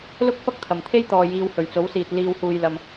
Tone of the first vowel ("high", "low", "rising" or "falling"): high